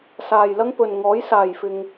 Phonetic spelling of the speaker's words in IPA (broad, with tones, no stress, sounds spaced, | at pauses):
s aː˨ j l ɐ˥ ŋ p ɵ˨ n ŋ ɔː˨˥ j s aː˨ j f ɪ˧ ŋ